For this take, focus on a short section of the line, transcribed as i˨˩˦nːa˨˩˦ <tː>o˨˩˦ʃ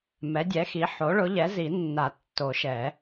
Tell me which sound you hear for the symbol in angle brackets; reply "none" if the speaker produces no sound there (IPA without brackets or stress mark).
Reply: tː